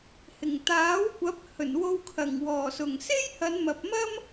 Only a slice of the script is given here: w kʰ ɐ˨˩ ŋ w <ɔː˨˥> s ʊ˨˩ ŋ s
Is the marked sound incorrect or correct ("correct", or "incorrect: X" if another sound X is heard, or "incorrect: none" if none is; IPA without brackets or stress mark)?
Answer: incorrect: ɔː˨˩